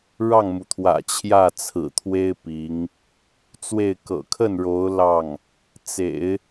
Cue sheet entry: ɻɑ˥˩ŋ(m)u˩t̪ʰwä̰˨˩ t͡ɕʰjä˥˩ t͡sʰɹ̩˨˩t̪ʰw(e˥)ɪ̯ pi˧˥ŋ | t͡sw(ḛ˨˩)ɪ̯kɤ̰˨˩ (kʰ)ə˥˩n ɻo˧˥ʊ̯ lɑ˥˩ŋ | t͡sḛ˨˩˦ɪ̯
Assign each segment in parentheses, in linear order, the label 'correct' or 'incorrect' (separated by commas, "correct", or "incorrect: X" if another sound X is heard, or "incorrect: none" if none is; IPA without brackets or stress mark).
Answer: correct, correct, incorrect: e˥˩, correct